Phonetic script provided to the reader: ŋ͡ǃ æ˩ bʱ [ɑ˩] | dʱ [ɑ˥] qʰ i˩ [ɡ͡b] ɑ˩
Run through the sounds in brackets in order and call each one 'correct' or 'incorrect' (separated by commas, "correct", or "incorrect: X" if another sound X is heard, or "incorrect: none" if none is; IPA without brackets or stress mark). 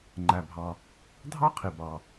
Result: correct, correct, incorrect: b